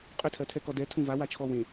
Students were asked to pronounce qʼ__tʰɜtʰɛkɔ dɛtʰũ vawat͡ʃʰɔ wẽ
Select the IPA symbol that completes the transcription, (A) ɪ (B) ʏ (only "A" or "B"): B